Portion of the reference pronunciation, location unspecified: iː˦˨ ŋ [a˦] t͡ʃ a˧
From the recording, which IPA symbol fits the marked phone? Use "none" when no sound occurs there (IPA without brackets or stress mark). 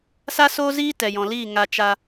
a˧